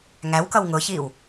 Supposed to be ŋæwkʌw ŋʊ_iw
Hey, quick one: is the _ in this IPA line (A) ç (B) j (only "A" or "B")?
A